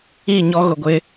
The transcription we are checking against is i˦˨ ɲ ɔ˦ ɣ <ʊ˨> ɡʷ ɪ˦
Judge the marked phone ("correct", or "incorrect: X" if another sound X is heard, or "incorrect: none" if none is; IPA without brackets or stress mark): correct